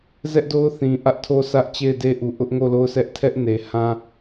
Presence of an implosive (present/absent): absent